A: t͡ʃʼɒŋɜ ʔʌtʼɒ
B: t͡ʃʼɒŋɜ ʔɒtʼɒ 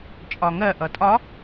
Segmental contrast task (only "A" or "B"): A